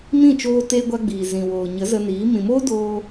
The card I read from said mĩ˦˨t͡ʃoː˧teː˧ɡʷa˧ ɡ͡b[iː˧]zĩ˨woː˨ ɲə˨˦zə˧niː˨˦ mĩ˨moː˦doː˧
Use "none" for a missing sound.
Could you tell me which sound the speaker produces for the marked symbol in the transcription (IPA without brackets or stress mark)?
iː˨